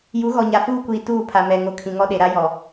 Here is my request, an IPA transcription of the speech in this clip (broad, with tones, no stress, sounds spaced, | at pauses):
j u˨˦ ɣ ɔ˨ ɲ a˨ f uː˦ kʷ iː˨ t uː˦˨ pʰ a˨ m ɛ˨ ŋ o˨ kʰ ĩ˨ ŋ ɔ˦ ɗ e˨ ɾ a˦ j ɔ˨